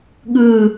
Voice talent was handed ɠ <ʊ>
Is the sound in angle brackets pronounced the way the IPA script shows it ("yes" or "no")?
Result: no